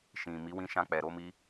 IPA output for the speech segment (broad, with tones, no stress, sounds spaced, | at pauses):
ʃ ĩ˨ m i˨˦ w ĩ˧ ʃ ã˧ k͡p ɛ˨ ɾ o˧ m i˧